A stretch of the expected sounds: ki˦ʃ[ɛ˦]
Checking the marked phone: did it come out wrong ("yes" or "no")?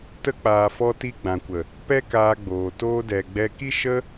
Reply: yes